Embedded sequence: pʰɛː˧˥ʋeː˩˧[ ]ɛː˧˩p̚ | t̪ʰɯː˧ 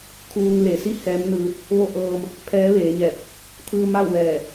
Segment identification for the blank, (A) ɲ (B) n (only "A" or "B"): A